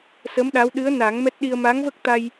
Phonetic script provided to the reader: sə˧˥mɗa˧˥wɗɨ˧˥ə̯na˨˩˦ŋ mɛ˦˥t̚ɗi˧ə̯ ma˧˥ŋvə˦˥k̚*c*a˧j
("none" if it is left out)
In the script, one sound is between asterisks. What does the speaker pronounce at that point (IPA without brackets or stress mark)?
t̪